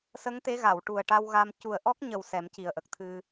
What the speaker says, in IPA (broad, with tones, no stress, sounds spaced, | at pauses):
s ə˧˥ ŋ t̪ e˧˥ ɣ a˨˩˨ w ʈ u˨˩ ə̯ ʈ a˧ w ɣ a˧ m c u˨˩ ə̯ ʔ ɔ˦˥ k̚ ɲ ə˨˩ w s ɛ˨˩˦ m c i˨˩ ə̯ ʔ ə˨˩ k̚ t̪ʰ ɨ˧